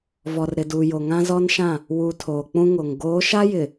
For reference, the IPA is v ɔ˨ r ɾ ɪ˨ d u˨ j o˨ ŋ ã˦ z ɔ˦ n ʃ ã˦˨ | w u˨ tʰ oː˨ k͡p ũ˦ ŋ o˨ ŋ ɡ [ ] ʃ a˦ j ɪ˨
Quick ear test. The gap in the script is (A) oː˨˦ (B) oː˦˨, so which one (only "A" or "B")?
A